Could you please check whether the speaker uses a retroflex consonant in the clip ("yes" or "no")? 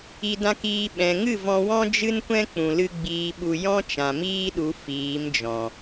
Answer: no